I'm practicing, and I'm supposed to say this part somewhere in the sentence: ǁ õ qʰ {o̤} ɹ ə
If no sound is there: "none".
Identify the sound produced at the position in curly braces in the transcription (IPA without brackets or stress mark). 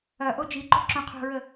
o̤